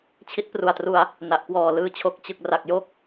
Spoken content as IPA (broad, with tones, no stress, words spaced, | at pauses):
t͡ɕʰi˦˥t̚pru˨˩a̯tru˧a̯ | na˨˩ʔ kwɔː˨˩lɯː˧t͡ɕʰo˨˩k̚ t͡ɕɯ˨˩k̚ ra˨˩k̚jo˥˩k̚